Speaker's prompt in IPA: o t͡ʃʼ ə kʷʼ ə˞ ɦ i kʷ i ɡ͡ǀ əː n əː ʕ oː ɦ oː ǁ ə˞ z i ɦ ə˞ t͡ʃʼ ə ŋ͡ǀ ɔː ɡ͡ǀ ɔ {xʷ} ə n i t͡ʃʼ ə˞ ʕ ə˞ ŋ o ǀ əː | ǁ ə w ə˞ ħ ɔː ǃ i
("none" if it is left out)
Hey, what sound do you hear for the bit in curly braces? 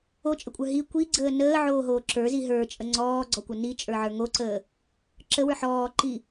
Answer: kʷ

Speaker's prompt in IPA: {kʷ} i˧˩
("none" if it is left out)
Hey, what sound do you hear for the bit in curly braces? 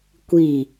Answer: kʷ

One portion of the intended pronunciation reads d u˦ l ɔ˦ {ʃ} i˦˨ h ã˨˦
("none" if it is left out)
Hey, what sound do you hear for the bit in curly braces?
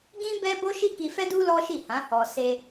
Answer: ʃ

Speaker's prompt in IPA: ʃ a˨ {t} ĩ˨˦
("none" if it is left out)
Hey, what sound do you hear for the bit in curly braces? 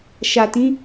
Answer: t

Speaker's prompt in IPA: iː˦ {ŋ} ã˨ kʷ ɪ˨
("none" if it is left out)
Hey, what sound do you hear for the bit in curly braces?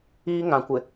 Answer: ŋ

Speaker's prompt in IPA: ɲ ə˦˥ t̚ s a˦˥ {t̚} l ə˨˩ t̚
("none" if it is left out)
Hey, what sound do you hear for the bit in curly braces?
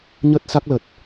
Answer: k̚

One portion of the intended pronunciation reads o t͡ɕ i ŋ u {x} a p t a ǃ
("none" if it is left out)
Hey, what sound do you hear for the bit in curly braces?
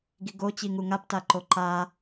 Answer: ŋ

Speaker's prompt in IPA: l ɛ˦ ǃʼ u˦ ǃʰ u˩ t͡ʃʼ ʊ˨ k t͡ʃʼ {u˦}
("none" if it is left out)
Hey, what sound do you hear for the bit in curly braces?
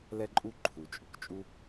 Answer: u˦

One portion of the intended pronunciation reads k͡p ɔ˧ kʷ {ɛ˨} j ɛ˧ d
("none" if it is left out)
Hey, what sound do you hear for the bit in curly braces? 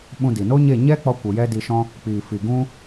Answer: ə˨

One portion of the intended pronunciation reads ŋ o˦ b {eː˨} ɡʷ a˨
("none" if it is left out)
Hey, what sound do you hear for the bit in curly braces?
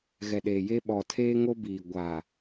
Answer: iː˨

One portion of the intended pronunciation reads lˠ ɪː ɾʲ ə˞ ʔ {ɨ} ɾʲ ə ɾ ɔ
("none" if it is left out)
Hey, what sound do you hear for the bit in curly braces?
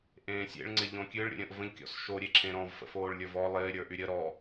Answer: y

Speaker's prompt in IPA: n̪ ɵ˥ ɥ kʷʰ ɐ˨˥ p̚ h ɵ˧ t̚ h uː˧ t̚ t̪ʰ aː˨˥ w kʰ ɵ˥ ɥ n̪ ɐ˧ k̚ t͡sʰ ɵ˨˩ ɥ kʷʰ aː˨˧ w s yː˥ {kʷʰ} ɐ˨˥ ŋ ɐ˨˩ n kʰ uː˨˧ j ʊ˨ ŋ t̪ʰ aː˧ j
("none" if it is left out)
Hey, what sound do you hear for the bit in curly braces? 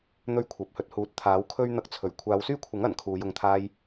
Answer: kʷʰ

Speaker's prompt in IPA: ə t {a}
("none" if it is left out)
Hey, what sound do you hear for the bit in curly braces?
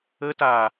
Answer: a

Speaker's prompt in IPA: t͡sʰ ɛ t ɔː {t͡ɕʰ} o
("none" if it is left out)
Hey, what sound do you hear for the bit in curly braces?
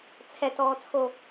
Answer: t͡sʰ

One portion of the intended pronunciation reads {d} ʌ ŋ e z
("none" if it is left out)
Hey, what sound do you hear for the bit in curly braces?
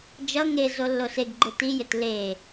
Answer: d͡ʒ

